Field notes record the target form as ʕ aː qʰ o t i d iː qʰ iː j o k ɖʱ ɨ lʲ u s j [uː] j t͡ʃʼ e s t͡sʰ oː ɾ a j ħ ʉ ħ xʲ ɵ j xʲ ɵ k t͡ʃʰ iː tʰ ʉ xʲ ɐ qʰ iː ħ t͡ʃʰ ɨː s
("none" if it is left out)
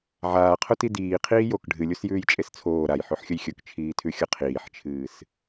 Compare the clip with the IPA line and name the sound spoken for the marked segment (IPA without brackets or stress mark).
ʉː